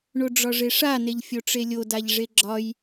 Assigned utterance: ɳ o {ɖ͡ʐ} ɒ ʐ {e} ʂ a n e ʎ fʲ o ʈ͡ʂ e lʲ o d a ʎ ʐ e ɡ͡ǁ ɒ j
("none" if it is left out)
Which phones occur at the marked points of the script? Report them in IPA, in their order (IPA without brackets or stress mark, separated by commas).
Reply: ɖ͡ʐ, e